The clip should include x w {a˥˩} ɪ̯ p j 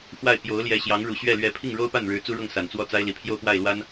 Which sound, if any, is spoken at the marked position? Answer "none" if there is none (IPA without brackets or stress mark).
a˥˩